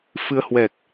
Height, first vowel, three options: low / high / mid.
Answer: high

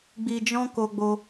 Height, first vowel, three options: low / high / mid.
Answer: high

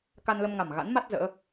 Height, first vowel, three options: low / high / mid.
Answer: low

